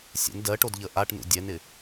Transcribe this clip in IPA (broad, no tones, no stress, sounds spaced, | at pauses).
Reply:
sʲ ɛ̰ n d ɜ ʈ o d ʎ ə ʔ a ʈ n ṵ dʲ ɛ n ɪ